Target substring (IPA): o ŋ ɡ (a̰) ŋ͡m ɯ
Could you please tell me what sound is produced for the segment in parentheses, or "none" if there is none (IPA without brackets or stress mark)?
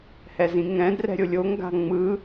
a̤